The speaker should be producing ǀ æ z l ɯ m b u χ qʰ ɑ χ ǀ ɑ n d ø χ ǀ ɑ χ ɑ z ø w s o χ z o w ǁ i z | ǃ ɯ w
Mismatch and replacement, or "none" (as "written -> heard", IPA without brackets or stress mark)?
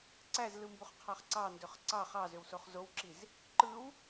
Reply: none